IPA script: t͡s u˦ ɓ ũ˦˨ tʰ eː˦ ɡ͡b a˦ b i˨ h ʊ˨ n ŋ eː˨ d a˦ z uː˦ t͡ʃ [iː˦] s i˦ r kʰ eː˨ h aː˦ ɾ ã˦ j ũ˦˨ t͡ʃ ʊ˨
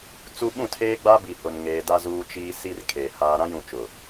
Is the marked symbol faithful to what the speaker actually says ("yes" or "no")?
yes